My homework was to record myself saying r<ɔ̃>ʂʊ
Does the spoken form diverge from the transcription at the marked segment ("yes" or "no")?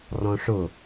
no